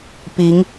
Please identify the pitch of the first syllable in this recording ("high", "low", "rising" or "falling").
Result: rising